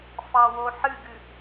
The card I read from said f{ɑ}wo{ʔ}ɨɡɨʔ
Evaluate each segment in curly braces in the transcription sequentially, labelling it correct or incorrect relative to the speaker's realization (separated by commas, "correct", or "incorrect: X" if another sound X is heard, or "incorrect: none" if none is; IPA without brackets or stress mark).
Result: correct, incorrect: ħ